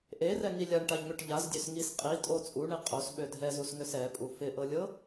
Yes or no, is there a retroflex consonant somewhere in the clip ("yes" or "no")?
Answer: yes